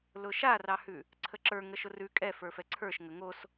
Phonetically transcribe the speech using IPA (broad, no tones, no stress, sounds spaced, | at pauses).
l ʊ ʃ a r ɑ h ʉ | ǀʰ ə ǁ ə˞ ŋ ə ʃ ʊ r ʉ kʼ ɛ f ə˞ f ɛ ǀʰ ə˞ ʃ ŋ ə ŋ o s